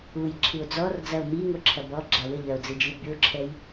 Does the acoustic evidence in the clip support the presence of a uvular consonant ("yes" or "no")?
no